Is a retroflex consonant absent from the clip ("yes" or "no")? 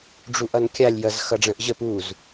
no